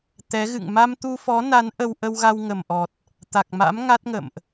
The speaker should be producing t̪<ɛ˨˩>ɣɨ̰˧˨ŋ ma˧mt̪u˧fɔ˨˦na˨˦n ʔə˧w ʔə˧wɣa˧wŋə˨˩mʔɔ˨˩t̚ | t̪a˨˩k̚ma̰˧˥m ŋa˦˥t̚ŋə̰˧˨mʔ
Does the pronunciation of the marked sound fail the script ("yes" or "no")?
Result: yes